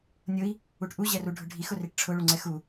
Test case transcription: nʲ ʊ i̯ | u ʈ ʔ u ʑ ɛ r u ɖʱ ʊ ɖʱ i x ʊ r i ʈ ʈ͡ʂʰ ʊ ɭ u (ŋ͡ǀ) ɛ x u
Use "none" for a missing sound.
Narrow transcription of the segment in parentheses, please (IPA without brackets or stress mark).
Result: ŋ͡ǀ